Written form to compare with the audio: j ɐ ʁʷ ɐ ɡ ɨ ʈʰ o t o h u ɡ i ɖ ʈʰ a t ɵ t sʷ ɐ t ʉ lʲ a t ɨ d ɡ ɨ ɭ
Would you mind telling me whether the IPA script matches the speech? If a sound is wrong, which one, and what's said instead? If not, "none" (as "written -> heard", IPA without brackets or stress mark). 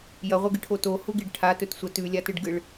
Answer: d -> ɖ